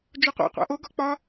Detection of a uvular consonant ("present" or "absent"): present